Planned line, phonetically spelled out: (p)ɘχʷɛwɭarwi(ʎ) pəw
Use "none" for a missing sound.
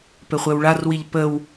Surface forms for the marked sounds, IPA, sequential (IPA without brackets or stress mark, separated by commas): p, ʎ